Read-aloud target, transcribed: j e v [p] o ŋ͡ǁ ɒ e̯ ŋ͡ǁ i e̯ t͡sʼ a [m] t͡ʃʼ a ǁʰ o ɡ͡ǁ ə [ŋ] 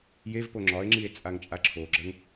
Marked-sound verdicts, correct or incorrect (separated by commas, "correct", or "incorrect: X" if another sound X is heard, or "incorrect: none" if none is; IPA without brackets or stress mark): correct, incorrect: ŋ, correct